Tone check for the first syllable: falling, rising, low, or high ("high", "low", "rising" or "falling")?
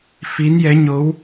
rising